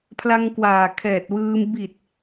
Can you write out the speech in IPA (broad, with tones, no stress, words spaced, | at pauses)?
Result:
pʰla˧ŋ kwaː˨˩ kʰɛː˨˩t̚wɯː˧m bi˨˩t̚